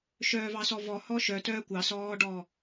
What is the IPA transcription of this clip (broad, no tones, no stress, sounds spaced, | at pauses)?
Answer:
ʃ œː v ɑ s ɔ v ɔ h ɔ ʃ œ t œː kʷ ɑ s ɔː ɖ ɔ